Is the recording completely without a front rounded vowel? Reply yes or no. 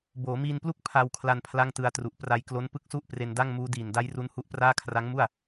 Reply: yes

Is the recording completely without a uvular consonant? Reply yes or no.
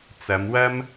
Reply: yes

